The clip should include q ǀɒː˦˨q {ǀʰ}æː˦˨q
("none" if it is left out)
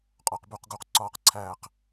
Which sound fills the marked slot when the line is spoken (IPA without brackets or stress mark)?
ǀʰ